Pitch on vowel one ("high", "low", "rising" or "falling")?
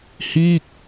falling